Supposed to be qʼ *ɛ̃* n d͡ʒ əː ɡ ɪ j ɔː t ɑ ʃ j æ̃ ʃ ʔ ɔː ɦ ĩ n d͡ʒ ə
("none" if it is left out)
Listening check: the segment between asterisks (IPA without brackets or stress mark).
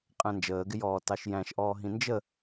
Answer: æ̃